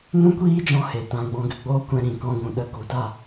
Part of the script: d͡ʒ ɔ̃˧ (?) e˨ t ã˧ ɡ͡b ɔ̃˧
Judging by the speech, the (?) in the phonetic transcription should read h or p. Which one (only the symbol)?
h